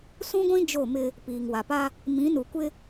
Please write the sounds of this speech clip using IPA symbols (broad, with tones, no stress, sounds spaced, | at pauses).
s ũ˦ ɡʷ ĩ˦ d͡ʒ o˦˨ m ɪ˦ | p iː˨ ŋ w a˨ p a˦ | m ĩ˨˦ n u˨ kʷ ɪ˦